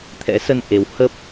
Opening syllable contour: rising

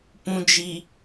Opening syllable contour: low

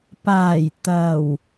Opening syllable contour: low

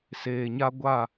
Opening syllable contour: low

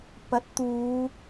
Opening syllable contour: rising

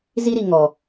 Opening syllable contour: high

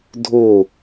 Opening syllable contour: falling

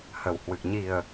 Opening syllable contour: low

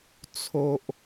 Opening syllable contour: low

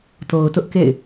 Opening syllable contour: low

